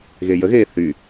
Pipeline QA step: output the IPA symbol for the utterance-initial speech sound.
ɣ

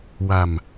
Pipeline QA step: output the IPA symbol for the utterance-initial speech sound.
w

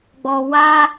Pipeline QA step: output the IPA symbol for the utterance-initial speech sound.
ɡ͡b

